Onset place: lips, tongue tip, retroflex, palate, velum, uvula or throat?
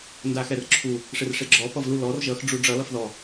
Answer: tongue tip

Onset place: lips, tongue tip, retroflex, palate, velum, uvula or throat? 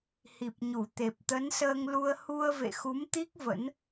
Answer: throat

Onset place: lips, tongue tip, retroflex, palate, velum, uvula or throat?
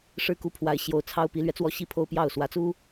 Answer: retroflex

